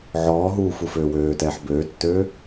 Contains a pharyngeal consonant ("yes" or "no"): yes